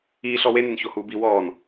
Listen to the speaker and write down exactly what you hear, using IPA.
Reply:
iːɬ ɔwenen çohuːbi wɔːn

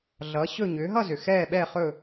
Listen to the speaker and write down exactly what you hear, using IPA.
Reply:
ɮʌ˨˦ ɕɵ˥˧ ɲʏː˨˦ɦʌ˥˧zʏ˨˩ xɛː˥˧ɓɛː˥˧χɵ˥˧

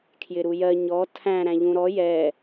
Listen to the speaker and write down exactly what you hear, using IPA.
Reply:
kʰjɪɾujɜ ɲɔ tʰæ̃ ɾæ̃ʎũɾɔ jɛ

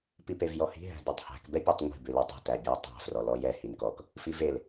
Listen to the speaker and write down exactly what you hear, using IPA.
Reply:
pipevjɔhi̤ ɦæ̤detˤhæ̤k bɛpʲætˤŋʷi̤ bʉlitˤi̤ tæbʲætˤæ̤ frɔlɔjɛ hinkɔk | fivel

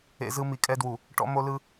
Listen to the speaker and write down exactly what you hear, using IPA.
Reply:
ḛ˦zɯ˦ mi˨kʼɛ˦dwu˨ | ʈɔ̰˦mo˦lɯ˦

